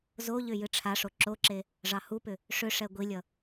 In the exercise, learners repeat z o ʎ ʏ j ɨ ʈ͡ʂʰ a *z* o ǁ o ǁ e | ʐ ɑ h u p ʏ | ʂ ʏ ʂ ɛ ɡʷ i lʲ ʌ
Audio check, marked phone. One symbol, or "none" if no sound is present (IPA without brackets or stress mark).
ʂ